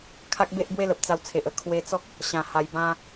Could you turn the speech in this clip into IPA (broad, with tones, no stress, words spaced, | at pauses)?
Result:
kʰa˦k̚be˦ʔbwe˦lə˨p̚ t͡sa˧wt͡sʰe˨ʔə˧ kʰwe˧t͡sɔ˦k̚ | ɕã˧ha˧jbã˦